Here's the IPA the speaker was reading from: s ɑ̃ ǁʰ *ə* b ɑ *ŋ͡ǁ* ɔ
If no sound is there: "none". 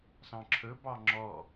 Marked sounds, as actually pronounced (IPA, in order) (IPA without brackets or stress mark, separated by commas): ɵ, ŋ͡ǁ